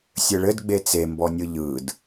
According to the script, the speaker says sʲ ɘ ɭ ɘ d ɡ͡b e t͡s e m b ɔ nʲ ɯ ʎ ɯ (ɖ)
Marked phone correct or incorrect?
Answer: incorrect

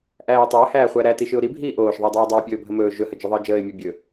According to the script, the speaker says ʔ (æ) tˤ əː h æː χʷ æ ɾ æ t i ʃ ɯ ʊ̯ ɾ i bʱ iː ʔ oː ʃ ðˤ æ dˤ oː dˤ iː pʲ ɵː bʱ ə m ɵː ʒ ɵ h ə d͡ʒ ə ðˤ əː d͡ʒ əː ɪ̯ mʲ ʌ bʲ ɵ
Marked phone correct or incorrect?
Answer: incorrect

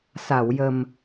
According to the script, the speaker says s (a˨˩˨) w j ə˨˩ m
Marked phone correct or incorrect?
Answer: correct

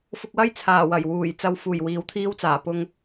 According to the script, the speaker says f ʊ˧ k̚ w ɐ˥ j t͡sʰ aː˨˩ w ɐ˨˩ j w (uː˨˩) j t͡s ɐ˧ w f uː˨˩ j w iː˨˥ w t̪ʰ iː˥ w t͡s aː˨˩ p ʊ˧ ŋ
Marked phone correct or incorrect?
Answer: correct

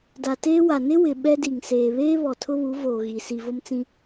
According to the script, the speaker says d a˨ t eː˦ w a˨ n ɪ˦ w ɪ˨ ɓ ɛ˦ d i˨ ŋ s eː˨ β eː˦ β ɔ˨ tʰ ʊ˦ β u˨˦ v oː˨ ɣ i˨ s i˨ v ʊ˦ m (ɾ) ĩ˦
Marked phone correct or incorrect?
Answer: incorrect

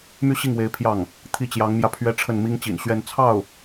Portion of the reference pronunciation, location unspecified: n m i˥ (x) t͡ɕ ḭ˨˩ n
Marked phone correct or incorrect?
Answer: incorrect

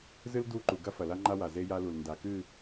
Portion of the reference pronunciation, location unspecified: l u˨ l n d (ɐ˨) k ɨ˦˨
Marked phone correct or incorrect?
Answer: incorrect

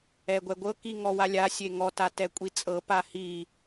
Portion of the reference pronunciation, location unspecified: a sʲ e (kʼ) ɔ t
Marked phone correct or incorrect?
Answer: incorrect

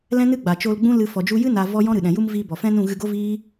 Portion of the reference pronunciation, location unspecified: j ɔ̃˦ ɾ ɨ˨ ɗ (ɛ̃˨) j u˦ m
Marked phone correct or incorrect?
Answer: correct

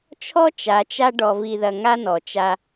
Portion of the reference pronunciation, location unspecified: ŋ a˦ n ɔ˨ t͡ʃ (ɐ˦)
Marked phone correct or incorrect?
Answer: incorrect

